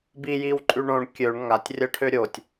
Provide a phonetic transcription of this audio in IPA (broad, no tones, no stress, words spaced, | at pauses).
bijiwǃʼy ɳõɳ kʲøɳ ŋatʲrʲɜʈʰø ɾʲotʲ